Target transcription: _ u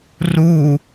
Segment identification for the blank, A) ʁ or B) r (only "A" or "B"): B